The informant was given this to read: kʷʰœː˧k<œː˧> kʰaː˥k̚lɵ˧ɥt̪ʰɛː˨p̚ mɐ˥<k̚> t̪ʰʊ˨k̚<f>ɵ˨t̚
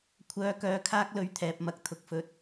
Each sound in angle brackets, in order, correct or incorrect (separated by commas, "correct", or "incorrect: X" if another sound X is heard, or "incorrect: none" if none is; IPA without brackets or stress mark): correct, correct, correct